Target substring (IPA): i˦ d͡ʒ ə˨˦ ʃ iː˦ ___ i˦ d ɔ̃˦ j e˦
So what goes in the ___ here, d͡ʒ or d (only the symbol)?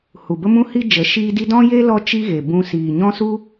d